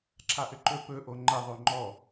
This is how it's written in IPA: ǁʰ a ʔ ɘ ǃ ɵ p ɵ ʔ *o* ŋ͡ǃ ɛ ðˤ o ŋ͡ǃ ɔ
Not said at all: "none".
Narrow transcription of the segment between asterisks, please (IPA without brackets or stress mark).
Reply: o